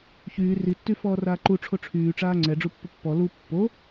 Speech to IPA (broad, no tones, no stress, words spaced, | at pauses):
çyː ritːy fɔːraːǃu ʈ͡ʂʰoʈ͡ʂʰyːʈ͡ʂaː ŋ͡ǀɛ ɖ͡ʐupːəpːɔ lu pːo